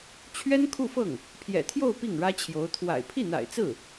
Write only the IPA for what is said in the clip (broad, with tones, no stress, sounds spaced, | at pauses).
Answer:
t͡ɕʰ ɥ ɛ˥ n kʰ u˥˧ f ɤ˥˩ ŋ | pʰ j ɛ̰˨˩ t̪ʰ j o˥˧ ʊ̯ p i˥˩ ŋ ɻ ä˥ t͡ɕʰ j o˧˥ ʊ̯ t̪ʰ w a̰˨˩ ɪ̯ pʰ i˥˩ n̪ a̰˨˩ ɪ̯ t͡s ɹ̩˥˩